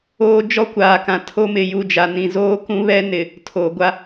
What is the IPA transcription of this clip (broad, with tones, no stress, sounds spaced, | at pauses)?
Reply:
oː˦ d͡ʒ ɔ˦ kʷ aː˨ k ã˨ tʰ o˦ m ɪ˨ j u˦˨ d͡ʒ a˨ n ĩ˨ z oː˦ k ũ˦ β ɛ˦ n ɪ˨ | tʰ oː˨ ɡʷ a˦